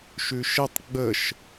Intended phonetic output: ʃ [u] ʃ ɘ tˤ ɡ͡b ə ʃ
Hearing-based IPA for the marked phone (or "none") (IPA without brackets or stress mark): ʉ